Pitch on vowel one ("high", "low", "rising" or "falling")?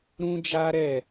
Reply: high